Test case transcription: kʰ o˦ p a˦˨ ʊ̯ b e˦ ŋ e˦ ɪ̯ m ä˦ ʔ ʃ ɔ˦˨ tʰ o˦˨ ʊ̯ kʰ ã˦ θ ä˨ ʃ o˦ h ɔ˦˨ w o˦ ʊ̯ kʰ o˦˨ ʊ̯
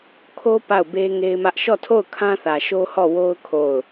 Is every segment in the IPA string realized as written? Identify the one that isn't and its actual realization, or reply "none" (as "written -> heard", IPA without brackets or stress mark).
none